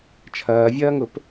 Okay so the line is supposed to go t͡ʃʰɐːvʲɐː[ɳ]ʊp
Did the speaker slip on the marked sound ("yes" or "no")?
yes